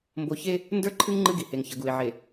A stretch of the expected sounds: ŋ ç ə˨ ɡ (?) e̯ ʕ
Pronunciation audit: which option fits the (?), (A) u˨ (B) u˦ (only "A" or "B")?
A